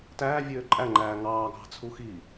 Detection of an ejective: present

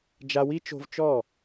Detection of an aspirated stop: absent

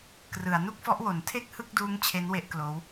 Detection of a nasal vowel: absent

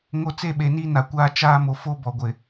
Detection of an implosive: present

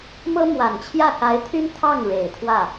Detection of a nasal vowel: absent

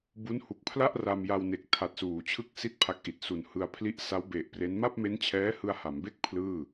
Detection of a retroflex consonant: absent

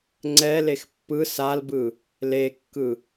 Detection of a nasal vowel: absent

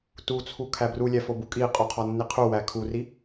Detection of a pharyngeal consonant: absent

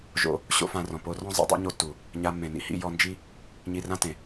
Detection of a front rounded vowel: absent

